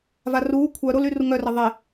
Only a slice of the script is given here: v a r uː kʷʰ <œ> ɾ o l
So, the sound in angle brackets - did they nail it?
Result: yes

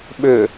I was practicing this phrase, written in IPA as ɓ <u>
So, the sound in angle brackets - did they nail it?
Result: no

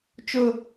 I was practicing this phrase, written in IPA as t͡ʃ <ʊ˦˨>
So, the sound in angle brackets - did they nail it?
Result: yes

